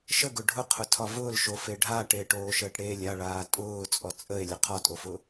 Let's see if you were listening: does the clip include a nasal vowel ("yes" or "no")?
no